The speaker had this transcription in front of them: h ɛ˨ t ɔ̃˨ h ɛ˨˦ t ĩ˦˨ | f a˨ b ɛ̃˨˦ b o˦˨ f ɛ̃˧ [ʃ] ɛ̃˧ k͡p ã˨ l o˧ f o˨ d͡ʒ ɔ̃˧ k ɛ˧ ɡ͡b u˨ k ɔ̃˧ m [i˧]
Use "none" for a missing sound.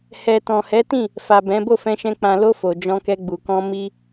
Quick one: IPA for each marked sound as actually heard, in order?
ʃ, i˦

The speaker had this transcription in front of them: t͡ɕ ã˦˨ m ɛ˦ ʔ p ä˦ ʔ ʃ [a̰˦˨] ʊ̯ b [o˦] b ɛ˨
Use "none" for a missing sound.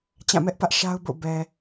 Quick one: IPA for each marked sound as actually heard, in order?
a˦, o̰˦˨

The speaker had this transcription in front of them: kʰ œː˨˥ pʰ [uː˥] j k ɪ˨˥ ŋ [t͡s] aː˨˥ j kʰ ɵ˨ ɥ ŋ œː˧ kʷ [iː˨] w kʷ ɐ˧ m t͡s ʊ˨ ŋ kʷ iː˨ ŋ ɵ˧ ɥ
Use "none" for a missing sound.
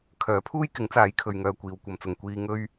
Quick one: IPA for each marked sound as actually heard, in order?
uː˥, t͡s, iː˨

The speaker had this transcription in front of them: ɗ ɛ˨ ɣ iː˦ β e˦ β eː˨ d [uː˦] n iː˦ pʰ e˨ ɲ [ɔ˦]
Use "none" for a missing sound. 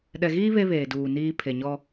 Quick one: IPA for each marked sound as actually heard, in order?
uː˨, ɔ˦

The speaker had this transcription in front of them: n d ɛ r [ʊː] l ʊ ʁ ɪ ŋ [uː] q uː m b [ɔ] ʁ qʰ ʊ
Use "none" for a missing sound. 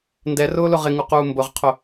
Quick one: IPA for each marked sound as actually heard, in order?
ʊː, u, ʊ

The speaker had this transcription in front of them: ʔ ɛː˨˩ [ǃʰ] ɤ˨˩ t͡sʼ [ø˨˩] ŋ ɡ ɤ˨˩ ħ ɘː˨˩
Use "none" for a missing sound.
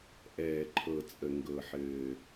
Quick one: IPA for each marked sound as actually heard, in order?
ǃʰ, ə˨˩

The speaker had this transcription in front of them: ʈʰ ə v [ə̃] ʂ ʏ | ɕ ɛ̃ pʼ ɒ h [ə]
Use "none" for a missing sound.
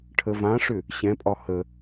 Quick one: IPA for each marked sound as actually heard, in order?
ã, ə

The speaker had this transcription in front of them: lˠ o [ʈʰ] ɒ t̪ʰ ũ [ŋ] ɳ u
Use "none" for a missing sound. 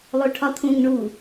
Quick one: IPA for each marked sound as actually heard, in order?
ʈʰ, ŋ

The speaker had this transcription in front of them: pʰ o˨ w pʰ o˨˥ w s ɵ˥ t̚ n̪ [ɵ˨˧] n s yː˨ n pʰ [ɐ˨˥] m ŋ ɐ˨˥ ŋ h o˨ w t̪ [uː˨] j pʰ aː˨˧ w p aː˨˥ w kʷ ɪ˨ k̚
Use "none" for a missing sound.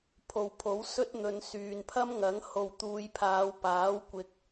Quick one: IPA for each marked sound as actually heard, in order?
ɵ˨˧, ɐ˥, uː˨˧

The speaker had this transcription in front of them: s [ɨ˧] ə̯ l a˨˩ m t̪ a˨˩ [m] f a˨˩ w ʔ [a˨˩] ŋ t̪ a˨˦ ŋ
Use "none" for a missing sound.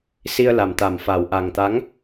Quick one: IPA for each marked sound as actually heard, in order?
i˧, m, a˨˩

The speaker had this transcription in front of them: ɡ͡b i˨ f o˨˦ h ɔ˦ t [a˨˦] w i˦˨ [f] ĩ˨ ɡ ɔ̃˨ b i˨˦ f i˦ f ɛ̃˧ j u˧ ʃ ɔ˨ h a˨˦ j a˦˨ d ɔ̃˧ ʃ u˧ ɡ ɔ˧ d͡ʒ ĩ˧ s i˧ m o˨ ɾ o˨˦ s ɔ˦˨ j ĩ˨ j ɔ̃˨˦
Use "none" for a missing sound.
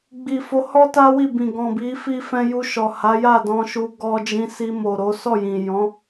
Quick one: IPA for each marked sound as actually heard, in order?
a˦, b

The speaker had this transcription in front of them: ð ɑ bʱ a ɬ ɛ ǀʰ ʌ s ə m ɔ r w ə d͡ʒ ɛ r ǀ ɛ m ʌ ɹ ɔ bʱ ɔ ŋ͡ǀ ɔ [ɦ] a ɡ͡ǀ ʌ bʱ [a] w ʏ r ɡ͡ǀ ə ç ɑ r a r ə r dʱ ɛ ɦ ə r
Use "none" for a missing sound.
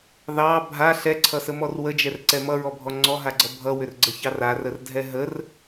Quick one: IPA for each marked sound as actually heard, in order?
ɦ, ʌ

